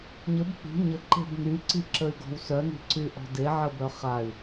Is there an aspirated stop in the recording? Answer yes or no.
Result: no